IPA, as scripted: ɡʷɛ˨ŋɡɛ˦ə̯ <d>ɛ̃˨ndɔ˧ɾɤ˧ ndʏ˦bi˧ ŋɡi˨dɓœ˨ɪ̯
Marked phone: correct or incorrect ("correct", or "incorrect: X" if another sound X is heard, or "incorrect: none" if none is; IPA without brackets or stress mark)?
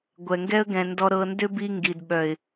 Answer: incorrect: ɡ